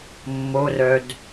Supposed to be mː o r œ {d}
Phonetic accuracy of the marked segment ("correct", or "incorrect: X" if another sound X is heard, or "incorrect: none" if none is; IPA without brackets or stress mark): correct